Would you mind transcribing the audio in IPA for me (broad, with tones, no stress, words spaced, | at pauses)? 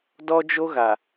dɔ˦d͡ʒo˦ɣa˨